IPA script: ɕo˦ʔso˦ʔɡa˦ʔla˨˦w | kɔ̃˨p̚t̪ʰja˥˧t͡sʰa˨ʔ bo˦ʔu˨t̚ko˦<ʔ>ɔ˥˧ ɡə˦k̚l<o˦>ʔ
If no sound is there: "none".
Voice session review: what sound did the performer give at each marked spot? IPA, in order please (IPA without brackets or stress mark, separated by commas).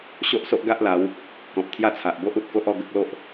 ʔ, o˦